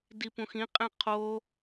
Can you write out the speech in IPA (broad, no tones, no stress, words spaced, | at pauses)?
dipũxĩ qʼẽqʰo